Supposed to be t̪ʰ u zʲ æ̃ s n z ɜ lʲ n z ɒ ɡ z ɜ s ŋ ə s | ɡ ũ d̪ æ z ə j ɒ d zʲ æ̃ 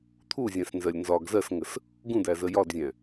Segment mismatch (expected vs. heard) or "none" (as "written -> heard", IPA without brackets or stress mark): none